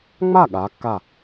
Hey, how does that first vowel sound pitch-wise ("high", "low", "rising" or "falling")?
falling